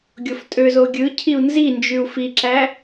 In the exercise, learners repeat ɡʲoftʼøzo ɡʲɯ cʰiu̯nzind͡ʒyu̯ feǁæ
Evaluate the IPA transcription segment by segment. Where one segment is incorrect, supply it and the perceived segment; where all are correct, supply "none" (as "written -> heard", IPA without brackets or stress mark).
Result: e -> i